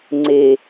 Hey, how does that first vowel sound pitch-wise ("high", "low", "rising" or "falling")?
low